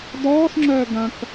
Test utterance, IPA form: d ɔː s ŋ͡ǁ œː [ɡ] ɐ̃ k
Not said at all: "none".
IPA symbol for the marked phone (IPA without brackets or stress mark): ɡ